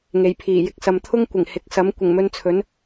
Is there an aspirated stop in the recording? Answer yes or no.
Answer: yes